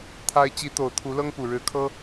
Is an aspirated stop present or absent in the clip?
present